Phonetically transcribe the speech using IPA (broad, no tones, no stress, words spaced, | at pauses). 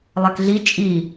lˠɛkɮi t͡ʃʼi